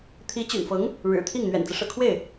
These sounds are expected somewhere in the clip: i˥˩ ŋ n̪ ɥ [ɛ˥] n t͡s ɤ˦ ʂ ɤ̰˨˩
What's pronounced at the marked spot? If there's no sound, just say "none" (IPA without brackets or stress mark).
ɛ̰˨˩